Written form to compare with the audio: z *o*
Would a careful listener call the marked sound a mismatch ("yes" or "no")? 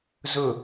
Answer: yes